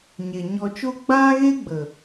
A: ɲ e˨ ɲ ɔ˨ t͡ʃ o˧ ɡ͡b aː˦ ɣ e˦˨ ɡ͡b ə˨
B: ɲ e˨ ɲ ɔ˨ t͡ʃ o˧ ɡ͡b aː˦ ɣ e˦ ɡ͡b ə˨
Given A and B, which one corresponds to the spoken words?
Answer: B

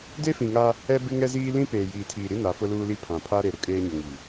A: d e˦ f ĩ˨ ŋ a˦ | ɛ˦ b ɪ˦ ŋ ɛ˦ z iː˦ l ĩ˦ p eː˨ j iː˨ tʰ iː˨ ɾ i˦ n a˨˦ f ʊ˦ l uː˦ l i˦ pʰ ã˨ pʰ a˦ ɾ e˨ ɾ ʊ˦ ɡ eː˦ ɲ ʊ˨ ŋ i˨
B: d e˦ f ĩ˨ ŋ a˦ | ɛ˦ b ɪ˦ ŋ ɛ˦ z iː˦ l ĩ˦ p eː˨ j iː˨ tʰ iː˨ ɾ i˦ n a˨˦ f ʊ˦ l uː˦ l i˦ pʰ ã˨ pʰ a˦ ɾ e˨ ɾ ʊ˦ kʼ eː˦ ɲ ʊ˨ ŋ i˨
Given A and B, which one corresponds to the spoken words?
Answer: B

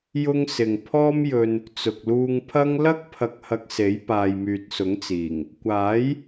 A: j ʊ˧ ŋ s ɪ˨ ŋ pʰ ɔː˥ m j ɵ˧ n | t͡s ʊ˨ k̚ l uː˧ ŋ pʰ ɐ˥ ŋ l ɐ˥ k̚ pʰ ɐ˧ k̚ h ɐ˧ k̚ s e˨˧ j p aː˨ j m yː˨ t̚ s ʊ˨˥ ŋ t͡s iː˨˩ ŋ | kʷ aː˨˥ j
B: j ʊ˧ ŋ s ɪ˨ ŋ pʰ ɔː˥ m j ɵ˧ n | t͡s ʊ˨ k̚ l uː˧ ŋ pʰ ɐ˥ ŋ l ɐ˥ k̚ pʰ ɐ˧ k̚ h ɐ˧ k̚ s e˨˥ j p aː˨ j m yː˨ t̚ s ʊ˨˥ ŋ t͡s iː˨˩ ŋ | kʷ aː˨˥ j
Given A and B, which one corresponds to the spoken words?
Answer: B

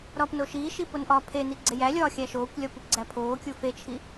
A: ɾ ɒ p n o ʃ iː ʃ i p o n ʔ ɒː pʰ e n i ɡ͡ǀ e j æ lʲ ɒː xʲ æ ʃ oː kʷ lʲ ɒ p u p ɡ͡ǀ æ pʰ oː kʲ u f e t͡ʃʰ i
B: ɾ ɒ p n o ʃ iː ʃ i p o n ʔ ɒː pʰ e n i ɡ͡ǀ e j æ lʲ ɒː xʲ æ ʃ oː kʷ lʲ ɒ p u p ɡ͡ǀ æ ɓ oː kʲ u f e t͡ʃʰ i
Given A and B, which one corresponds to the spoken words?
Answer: A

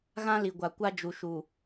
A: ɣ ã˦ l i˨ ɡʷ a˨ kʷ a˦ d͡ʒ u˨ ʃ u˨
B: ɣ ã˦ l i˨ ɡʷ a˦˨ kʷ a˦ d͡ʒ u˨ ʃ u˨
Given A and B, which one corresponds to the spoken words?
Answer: A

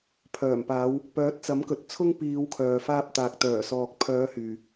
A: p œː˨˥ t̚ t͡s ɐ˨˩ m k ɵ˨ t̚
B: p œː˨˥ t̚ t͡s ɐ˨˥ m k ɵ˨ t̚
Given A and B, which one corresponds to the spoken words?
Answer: B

